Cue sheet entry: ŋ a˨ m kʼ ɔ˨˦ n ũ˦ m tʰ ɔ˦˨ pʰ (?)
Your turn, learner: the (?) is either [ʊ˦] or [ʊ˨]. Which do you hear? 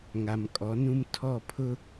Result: ʊ˦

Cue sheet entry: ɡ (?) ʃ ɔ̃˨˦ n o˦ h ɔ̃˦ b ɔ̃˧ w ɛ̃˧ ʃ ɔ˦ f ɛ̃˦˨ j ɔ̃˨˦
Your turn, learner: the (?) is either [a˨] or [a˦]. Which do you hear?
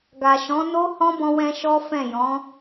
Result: a˨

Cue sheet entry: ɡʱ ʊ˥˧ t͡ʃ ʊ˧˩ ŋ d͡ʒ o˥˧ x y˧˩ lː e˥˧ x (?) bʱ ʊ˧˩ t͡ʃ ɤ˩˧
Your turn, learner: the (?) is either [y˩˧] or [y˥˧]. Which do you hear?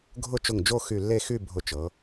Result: y˥˧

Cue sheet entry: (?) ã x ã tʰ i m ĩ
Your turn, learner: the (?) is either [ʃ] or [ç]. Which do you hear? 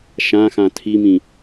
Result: ʃ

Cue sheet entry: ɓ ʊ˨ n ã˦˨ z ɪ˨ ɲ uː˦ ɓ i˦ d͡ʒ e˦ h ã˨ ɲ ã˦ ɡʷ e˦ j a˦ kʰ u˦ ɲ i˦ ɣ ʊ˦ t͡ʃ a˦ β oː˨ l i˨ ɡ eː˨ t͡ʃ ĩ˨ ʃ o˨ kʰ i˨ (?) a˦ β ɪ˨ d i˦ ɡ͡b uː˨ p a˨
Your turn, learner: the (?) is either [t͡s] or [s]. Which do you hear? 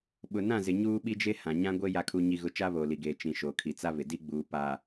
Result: t͡s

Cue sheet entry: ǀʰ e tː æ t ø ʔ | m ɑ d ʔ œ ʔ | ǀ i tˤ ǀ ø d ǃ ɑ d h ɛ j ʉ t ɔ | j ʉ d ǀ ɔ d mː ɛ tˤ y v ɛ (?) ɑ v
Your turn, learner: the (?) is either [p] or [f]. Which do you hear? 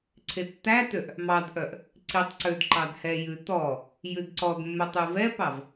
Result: p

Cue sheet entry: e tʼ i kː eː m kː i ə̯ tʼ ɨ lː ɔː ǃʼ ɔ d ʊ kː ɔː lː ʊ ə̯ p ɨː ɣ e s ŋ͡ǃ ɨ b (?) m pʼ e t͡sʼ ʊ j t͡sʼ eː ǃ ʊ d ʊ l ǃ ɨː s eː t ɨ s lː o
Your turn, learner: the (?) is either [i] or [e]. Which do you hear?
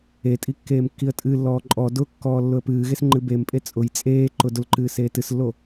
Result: e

